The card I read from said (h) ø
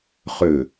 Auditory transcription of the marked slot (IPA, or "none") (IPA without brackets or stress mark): χ